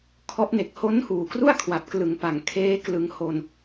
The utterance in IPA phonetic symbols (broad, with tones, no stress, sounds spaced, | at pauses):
kʰ ɔ˦˥ ʔ n e˨˩ k̚ h o˦˥ n h uː˨˩ k r u˥˩ a̯ kʰ w a˨˩ p̚ k l ɯ˨˩ ŋ p a˨˩ ŋ kʰ eː˦˥ k l ɯ˧ ŋ h o˧ n